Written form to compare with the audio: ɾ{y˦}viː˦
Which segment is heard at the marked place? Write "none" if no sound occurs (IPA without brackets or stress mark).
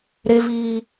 e˦